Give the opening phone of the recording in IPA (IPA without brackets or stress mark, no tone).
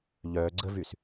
ʎ